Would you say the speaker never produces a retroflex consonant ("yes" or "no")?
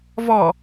yes